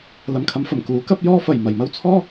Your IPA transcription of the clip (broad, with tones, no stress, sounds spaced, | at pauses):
l ɐ˨ m kʰ ɐ˨˧ m f ɐ˨˩ m k uː˨˥ k ɐ˥ p̚ j ɔː˥ f ɐ˨˩ j m ɐ˨˩ j m ɐ˥ w t͡sʰ ɔː˥